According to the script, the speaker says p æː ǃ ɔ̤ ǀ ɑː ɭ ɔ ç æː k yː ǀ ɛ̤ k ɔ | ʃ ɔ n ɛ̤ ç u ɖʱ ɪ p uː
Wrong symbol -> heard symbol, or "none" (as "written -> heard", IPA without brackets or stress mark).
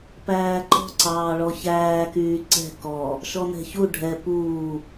ɪ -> ɛ